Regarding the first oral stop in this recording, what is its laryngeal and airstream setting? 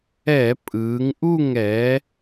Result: ejective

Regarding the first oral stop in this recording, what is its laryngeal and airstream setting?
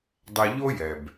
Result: plain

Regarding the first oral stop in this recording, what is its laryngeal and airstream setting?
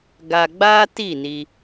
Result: plain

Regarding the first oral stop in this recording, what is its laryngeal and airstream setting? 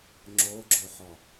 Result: click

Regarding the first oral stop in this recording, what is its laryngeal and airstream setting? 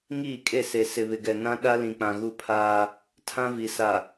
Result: ejective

